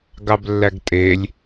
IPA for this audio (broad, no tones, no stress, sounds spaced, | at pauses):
ɡ ɑ b lː æ ɡ tʼ e lʲ